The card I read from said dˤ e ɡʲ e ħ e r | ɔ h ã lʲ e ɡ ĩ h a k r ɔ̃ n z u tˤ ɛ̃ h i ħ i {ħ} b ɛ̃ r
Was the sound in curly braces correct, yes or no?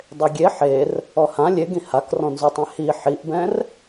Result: no